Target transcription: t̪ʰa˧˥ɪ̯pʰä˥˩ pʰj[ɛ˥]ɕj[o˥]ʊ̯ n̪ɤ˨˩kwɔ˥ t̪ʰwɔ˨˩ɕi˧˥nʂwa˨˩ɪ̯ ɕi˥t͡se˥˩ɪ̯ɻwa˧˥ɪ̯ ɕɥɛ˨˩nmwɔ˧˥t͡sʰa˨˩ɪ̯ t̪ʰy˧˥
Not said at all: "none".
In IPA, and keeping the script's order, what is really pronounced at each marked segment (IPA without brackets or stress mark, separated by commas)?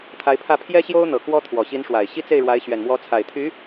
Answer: ɛ˥, o˥